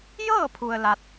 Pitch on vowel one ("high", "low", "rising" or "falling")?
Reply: falling